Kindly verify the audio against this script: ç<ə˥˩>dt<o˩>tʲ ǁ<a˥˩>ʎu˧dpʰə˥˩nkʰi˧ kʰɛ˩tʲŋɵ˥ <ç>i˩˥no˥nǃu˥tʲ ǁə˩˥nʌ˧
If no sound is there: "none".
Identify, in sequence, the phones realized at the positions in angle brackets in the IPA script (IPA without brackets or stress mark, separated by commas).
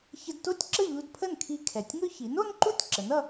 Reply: ə˧, o˥, ə˥˩, ç